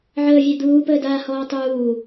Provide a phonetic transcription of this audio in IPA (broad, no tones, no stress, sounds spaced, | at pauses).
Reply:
ʕ əː vʲ ɛ d̪ uː p əː d aː h ɔː tˤ uː